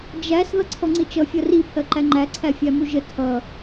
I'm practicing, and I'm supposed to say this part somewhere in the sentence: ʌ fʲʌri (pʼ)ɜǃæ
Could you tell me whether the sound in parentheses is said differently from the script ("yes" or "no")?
yes